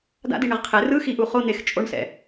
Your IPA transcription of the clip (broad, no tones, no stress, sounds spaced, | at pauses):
d a̰ d i ɳ ɛ ʁ qʰ e r ɯ x i ʔ u χ o n̪ e x t͡ʃʼ o ɳ s ɛ̰